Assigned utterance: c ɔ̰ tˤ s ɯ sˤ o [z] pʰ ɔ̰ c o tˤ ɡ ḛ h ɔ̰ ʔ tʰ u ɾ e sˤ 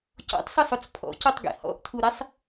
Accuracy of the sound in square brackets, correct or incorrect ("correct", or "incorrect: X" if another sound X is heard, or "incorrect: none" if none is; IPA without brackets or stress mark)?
incorrect: t͡s